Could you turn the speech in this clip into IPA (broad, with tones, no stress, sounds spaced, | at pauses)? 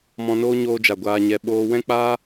m ɔ̃˧ n oː˦ ɲ oː˧ d͡ʒ a˨ ɡʷ aː˧ ɲ ɛ˧ ɓ oː˧ w ɛ̃˦ k͡p aː˦